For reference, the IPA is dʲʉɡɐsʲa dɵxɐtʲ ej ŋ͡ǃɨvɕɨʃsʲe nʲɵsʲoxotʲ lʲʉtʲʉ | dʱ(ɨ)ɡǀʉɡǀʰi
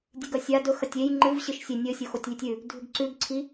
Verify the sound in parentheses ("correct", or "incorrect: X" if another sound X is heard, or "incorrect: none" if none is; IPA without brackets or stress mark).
incorrect: ʉ